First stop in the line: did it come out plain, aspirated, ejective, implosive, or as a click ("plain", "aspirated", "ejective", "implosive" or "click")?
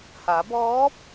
plain